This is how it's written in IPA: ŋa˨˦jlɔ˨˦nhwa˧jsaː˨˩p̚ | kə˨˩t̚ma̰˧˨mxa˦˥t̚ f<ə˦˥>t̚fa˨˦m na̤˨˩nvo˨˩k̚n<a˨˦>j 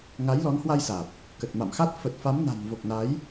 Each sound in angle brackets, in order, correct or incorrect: incorrect: ə˨˩, correct

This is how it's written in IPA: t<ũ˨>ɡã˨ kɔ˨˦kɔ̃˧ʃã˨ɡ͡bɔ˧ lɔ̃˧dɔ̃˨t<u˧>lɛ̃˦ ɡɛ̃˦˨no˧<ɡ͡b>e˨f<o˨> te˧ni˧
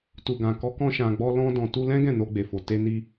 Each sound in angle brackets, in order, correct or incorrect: incorrect: u˨, correct, correct, correct

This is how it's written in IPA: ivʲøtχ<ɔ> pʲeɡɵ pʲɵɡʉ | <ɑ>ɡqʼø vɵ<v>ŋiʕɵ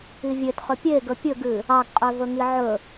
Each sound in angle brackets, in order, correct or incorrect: incorrect: ɵ, correct, incorrect: none

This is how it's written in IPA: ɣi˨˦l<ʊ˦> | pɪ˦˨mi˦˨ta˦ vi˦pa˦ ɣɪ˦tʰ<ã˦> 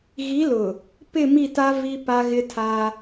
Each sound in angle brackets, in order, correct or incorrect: incorrect: ʊ˨, incorrect: a˦

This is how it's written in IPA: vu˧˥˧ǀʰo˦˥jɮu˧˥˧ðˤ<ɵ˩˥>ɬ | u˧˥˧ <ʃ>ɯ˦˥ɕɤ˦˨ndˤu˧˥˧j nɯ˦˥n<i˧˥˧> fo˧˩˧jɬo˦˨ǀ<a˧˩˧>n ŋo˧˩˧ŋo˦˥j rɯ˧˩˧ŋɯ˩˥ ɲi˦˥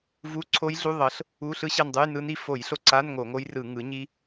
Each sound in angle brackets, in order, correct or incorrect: incorrect: ɤ˩˥, incorrect: ɬ, incorrect: i˦˨, incorrect: a˧˥˧

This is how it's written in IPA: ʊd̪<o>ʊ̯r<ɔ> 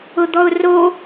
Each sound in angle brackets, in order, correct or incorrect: incorrect: ɔ, incorrect: o

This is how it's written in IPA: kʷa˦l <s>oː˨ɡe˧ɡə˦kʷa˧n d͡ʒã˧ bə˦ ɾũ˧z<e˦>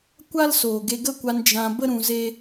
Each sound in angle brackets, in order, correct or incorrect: correct, correct

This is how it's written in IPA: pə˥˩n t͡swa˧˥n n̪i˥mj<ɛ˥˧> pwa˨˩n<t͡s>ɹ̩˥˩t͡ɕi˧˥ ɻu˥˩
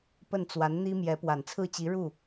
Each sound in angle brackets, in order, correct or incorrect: incorrect: ɛ˧˥, incorrect: t͡sʰ

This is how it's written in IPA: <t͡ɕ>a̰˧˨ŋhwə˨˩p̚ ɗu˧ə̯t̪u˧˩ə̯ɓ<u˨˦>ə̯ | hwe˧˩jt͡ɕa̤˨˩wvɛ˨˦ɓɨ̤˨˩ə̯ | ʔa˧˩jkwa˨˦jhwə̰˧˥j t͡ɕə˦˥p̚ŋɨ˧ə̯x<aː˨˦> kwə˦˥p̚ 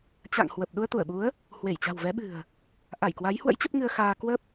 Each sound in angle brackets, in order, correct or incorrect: correct, correct, incorrect: aː˧

